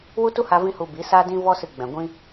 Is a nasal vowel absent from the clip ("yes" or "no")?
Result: no